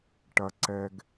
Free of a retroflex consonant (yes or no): no